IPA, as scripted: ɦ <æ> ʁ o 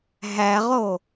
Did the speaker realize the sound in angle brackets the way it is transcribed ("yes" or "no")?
yes